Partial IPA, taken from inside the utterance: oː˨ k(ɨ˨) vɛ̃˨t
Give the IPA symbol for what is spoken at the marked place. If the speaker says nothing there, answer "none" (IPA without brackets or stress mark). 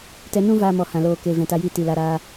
e˨